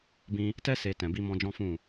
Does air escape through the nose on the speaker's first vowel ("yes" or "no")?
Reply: yes